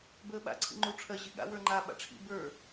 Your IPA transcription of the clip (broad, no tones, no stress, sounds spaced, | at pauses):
b əː ɓ a̰ ǀʰ ḭ ŋ͡ǃ u ʈ͡ʂʰ ɜ ʑ i ɠ a̰ w ə˞ ŋ͡ǃ a ɓ a̰ ʈ͡ʂʰ ḭ b ə˞